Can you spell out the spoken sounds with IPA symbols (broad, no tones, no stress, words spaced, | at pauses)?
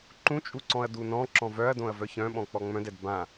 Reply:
ǃũt͡ʃʼuǀɔ̃ɐ̯ dunɔ̃ ǁɔ̃vœɐ̯dõɐ̯ vœçœ̃ ɓɔ̃k͡pɔŋ͡mœ̃dɛd bã